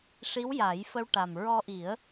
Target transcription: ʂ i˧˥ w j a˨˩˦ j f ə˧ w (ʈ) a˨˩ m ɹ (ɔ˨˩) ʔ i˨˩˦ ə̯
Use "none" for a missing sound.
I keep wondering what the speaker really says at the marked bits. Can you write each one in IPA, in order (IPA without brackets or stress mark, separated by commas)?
ʈ, ɔ˧